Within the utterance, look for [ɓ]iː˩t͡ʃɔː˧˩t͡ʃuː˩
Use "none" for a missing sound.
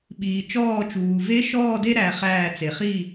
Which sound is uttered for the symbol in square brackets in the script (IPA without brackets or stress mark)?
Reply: ɓ